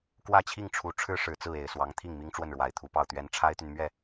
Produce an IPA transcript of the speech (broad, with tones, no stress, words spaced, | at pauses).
kwä˥˧t͡ɕʰi˥˩ŋʈ͡ʂʰu˧˥ ʈ͡ʂʰɻ̩˥ʂɻ̩˨˩t͡sɹ̩˥˩e˨˩ɪ̯ swɑ˧˥ŋt̪ʰi˥˩ŋ mi˥ŋʈ͡ʂwə˥˩nɻwa˨˩ɪ̯t̪ʰu˧˥ pɑ˥˩ʊ̯t̪ɥɛ˥n ʈ͡ʂʰa˥ɪ̯t̪y˨nmɥɛ˥˩